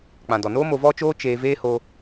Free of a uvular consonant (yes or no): yes